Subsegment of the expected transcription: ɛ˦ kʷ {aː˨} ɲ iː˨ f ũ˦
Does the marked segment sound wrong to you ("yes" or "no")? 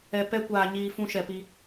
no